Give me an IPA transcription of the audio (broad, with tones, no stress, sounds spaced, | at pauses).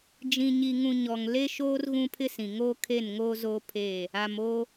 d͡ʒ ĩ˨ ɲ i˨ ŋ ũ˨ ɲ ɔ˨ ŋ l e˦ ʃ oː˦ r ɣ ũ˦ pʰ ɪ˦ s ĩ˨ ŋ oː˦ kʰ e˦˨ n ŋ oː˦ z oː˦ pʰ eː˦˨ | a˨ m oː˦